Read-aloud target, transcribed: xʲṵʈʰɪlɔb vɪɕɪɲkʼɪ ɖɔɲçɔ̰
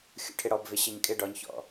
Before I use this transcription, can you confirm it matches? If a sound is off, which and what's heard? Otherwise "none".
l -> ɽ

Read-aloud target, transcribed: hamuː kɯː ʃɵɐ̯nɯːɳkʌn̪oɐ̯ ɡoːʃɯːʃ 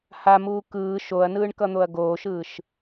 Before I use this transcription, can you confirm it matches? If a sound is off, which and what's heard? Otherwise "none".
ɵ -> o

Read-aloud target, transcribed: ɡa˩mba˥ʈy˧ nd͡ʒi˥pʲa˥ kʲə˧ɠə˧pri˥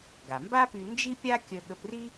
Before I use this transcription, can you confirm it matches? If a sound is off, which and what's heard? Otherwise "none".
ʈ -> p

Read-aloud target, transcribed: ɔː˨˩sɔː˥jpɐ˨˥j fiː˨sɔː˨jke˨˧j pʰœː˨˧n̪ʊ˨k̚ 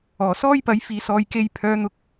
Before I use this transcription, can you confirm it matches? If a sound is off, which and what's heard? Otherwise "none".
none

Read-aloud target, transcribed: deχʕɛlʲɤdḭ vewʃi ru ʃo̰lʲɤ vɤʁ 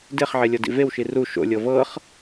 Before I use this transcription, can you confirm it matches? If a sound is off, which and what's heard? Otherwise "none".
ʁ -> χ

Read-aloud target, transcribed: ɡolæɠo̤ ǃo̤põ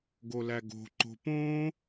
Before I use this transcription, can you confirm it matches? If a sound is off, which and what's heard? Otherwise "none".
ɠ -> ɡ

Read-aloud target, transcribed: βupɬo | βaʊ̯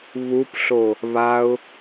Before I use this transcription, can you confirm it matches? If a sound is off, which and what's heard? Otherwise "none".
none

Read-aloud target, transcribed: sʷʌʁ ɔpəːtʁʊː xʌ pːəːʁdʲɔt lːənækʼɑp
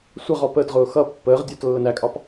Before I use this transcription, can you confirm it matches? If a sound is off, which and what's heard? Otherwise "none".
none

